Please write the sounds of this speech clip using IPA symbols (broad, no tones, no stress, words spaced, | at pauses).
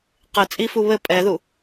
qɨ t͡sʼifu βɘ pʼɛðu